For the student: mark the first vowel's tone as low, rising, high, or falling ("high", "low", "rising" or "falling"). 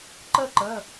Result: falling